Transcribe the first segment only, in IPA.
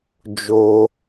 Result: d͡ʒ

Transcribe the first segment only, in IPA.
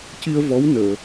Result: c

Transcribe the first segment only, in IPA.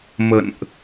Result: m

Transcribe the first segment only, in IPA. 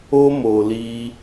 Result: o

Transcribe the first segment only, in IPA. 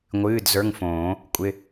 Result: ŋʷ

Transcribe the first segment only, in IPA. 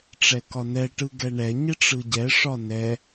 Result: ʈ͡ʂ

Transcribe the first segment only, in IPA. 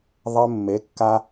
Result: ðˤ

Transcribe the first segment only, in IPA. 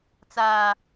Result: t͡s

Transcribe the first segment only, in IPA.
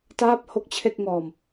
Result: t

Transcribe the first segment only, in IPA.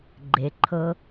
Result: ɡ͡ǃ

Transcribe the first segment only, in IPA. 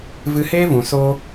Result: v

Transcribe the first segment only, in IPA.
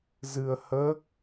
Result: z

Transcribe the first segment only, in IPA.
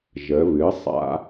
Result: ʒ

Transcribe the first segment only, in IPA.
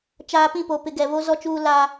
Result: t͡ʃ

